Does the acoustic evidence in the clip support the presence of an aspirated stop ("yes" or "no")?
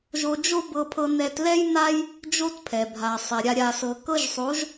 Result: yes